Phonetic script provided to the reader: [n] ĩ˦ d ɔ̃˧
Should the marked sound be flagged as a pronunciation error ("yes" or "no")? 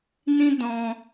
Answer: no